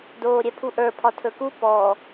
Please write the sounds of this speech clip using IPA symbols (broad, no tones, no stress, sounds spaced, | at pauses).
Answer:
d oː ɾʲ ɛ pʰ u ʔ ə˞ pʰ ɒ tʰ ɵ k u p ɔ